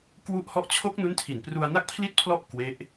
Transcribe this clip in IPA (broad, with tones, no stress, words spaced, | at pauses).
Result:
kwu˥˩ʔhɔ˥˩ʔ t͡ɕʰo˦˥k̚nu˦˥ntʰi˨˩n pru˧a̯na˥˩k̚pʰli˥˩t̚pʰlɔ˥˩ʔ kwe˦˥ʔ